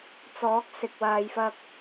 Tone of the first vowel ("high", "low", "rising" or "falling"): rising